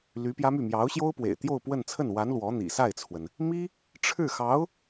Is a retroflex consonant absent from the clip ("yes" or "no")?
no